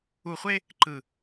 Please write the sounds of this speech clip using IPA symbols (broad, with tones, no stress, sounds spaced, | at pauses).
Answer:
u˨ χʷ e˦ | ǃ ɯ˨